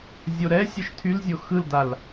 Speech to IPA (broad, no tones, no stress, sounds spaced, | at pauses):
zʲ o ɾ ɛ sʲ ɘ ʃ tʰ y l zʲ o x ɯ l d a l